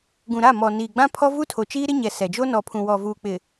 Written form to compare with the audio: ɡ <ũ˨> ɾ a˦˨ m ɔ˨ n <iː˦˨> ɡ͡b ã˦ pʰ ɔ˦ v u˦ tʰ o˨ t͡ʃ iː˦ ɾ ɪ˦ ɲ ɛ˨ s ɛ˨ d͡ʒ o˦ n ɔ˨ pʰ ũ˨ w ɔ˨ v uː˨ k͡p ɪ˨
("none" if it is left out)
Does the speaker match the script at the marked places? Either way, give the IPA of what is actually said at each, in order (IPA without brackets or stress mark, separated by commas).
ũ˨, iː˨